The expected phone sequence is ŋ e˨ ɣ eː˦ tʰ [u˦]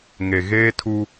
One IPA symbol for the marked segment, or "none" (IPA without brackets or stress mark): u˦